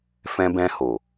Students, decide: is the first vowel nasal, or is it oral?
nasal